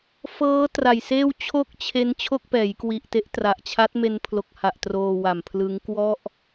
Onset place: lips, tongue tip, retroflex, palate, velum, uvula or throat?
lips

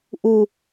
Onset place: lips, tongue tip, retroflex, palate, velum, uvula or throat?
throat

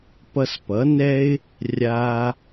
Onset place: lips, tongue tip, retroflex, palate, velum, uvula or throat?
lips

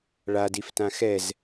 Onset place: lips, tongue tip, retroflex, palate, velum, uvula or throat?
retroflex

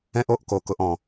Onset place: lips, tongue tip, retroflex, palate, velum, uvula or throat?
throat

